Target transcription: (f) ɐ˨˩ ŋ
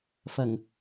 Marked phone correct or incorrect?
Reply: correct